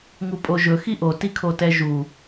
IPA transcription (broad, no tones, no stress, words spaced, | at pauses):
ŋupʼoʒɵ xiʔo tikʰotɛʒu